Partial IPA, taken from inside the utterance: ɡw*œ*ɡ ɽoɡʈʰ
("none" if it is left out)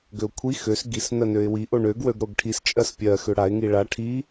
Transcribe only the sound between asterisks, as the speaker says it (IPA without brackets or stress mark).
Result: ø